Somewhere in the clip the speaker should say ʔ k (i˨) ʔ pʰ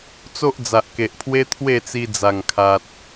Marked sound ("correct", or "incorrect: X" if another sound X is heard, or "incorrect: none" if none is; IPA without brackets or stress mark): incorrect: e˨